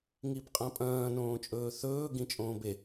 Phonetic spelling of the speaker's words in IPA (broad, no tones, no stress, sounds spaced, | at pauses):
ŋ i b qʼ ã pʼ ɐ̃ː n õː t͡ʃʼ ɵː θ ɵː ɡ ĩ t͡ʃʼ õː b e